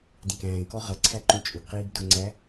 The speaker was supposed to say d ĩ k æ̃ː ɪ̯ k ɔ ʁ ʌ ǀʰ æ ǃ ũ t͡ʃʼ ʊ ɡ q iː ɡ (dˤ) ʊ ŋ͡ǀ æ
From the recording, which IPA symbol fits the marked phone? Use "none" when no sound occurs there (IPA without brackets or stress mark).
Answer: d